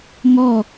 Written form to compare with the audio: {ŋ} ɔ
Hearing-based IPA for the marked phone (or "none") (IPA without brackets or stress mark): ŋ